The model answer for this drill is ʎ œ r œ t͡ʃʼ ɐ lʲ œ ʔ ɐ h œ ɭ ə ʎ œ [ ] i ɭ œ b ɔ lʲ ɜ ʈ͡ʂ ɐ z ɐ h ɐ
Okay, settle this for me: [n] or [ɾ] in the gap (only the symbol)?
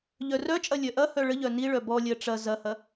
n